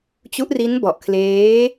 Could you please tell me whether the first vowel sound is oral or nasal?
oral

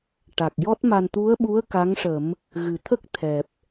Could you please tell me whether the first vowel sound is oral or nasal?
oral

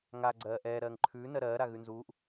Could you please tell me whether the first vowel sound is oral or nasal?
oral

